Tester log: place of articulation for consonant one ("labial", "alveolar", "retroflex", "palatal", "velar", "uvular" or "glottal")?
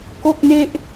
velar